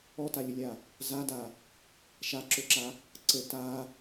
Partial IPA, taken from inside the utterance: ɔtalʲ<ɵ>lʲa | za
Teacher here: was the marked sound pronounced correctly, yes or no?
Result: no